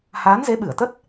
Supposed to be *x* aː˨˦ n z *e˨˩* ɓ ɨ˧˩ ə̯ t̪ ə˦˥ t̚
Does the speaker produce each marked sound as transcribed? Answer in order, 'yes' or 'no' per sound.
no, no

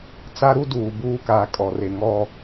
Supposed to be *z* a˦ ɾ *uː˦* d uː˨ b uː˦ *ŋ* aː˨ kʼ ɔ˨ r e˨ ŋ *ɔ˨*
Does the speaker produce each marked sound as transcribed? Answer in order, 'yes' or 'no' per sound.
no, no, no, yes

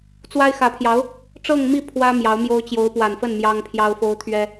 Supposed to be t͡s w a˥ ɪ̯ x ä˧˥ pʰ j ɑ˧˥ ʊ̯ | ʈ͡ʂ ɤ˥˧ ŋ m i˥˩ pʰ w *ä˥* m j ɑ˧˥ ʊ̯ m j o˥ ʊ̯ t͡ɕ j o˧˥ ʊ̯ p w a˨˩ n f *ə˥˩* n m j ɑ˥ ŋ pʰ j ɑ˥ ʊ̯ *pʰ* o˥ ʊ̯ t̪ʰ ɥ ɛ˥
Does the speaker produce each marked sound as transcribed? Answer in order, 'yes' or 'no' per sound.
yes, yes, no

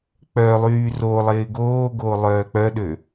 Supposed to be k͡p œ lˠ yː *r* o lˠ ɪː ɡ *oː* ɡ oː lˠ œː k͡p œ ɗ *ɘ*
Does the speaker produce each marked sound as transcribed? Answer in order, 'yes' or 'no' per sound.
yes, yes, no

